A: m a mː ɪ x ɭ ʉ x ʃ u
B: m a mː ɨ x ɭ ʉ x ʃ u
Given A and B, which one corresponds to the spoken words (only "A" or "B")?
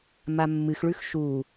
B